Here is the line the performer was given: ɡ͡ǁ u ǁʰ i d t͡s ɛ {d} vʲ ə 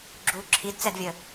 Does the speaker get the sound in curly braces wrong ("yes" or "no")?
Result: no